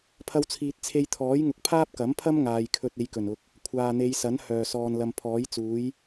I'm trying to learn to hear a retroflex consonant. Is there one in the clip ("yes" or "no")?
no